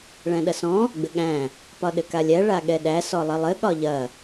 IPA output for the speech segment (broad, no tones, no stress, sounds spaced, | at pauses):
ɭ æ̃ ɗ ɐ s ɔ̃ | ɡ͡b ɘ ɠ æ̃ | p ɒ ɗ ɘ k a lʲ æ ɭ a ɠ ɛ ɗ æ s ɔ lˠ ɘ lˠ ɘ ɠ ɒ ʎ ɐ